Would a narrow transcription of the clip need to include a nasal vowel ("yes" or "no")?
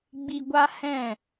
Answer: yes